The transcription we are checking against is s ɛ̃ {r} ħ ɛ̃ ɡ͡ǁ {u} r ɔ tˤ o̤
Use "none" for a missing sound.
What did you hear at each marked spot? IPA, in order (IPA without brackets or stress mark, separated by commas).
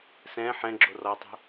none, o